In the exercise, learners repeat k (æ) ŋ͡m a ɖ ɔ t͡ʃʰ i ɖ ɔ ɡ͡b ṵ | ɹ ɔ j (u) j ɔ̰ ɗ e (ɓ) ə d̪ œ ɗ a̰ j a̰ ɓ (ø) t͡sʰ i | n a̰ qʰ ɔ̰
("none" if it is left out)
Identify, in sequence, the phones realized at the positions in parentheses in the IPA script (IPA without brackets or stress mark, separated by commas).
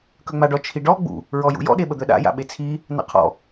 œ, ṵ, ɓ, e